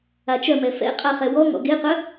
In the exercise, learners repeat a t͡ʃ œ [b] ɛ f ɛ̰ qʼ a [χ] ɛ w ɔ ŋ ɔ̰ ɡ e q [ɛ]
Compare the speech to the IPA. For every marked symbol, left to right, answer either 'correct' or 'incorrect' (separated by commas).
incorrect, correct, incorrect